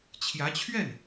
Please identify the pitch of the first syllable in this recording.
rising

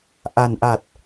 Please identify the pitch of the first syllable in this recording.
low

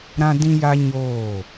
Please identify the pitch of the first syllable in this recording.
high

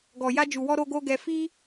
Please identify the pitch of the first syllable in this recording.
low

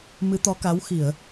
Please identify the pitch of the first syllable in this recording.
rising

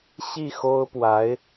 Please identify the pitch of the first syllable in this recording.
falling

